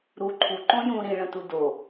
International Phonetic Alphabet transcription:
ɾ u ǃʰ u ǃ õ j ũ ɾ ĩ ɭ ə̃ t u d o

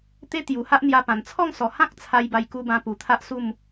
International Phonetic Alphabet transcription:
t̪ e˦ t̪ j u˨˩ h a˦ ʔ n̪ j a˧ p ã˨˩ n t͡sʰ ɔ˥˧ ŋ s ɔ˨˩ h ã˦ k̚ t͡sʰ a˧ j b a˧ j k u˧ b ã˧ p u˨˩ t̪ʰ a˦ ʔ s u˥˧ m

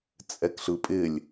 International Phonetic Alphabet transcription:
t͡sʼ ɛ k ɬ ɯ pʼ ɪ lʲ

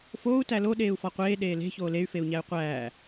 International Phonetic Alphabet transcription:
f oː u̯ t æ l o ɗ eː u̯ f ɒ qʷ eː ɗ eː l e̤ ç oː l e y̯ f e u̯ ɲ æ y̯ qʷ æː

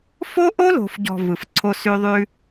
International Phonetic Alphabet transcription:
f o˦ ʔ o˦ l o̤˨ f ɟ ɔ̤˨ v ɯ˨ f ǀʰ o˦ s ʉ˦ ðˤ ʉ˦

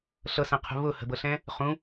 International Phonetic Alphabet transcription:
ɬ ɤ s ə̃ qʰ ṳ β ʊ h ə̤ b ɤ ɬ ɛ̃ | χ ũ

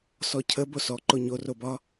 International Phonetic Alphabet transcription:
s ɔ cʰ ə b o s ɔ ǃ o ɲ o r o b ɒ

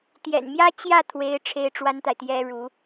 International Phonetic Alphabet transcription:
t̪ j ɛ̰˨˩ n m j ä˥ t͡ɕ j ä˥˩ t̪ʰ w e˧˥ ɪ̯ ʈ͡ʂʰ e˥ ɪ̯ ʈ͡ʂ w a˥ n t̪ a˨ ɪ̯ t̪ j ɛ˥ ɻ u˧˥

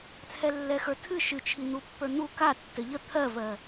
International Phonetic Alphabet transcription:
t͡sʰ ɛ lː ɛ x ə˞ tʰ ɨ ʃ ɨ t͡ʃʰ i n̪ u pː ə˞ n̪ u k a tː ɘ ʎ ə t̪ʰ ɜ v ɜ

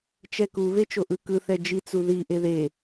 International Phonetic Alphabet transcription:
t͡ʃ ɛ k u β e t͡ʃ o ʔ ɯ k ɯ θ ɛ d͡ʒ i t͡s u ð i ʔ e ð e

